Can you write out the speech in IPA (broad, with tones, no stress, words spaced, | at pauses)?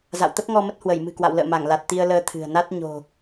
za̰˧˨wt̪ə˦˥p̚ŋɔ˧mə˦˥t̚ hwə˧˩jmɨ̤˨˩kwa̰˧˨w lə̰ː˧˨ma˧˩ŋla˨˩t̚ t̪i˧ə̯ləː˧t̪ʰɨ̤˨˩ə̯na˦˥t̚ ɲo̤˨˩